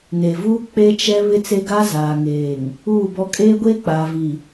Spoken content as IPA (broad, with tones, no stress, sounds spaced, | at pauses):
n e˨ v uː˦ k͡p e˦ t͡ʃ ɛ˦ β ɪ˦ t͡s e˦ ɡ a˦ z aː˨ ŋ eː˨ ŋ | uː˦˨ b ɔ˦ kʼ eː˦ ɡʷ eː˦ k͡p aː˨ v i˨